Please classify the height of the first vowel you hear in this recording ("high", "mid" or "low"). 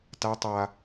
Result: low